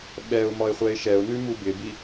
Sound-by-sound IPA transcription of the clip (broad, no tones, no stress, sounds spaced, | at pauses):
ɓ ɛ ʊ̯ m ɒ ɪ̯ χʷ ɛ ɪ̯ ʃ ɛ ʊ̯ n ʉ m u b ɪ b i